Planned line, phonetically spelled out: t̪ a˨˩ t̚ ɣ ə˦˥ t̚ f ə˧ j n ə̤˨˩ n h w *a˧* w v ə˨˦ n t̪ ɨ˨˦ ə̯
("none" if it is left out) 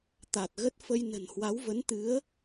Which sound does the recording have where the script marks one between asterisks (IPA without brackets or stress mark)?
a˨˦